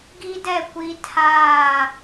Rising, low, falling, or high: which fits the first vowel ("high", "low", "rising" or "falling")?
high